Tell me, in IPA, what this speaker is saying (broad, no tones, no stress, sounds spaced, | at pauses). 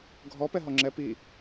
ɡʱ ɔ p ɛ ɦ ɔ ŋ͡ǁ ɛ p i